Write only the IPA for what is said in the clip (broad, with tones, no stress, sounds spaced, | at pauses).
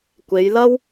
kʷ e˨˧ j l ɐ˥ w